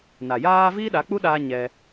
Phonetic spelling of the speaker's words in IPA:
n a˨ j aː˦ v iː˦ ɗ a˨˦ k͡p u˦ ɗ aː˧ ɲ ɛ˧

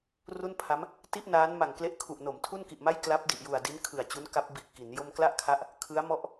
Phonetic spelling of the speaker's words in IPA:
r u˥˩ n pʰ a˦˥ m | t i˥˩ ʔ n aː˦˥ n m a˨˩ ŋ k l e˦˥ ʔ kʰ u˨˩ ʔ n o˩˦ m tʰ u˥˩ n k i˨˩ ʔ m a˥˩ j k l a˦˥ p̚ d i˨˩ ʔ j u˨˩ a̯ d i˦˥ n kʰ ɯ˨˩ a̯ t͡ɕ u˦˥ n k a˦˥ p̚ b i˨˩ ʔ k i˩˦ n j o˥˩ m k l a˥˩ ʔ kʰ a˦˥ ʔ | kʰ ɯ˦˥ a̯ m ɔ˥˩ ʔ

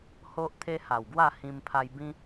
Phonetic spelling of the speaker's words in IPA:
h o˦ ʔ t̪ʰ e˦ h a˨˩ w ɡ w a˥˧ h ĩ˧ m pʰ a˧ j b ĩ˦

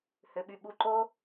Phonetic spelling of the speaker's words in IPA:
h ʏ ɓ y ɓ u ǃ o

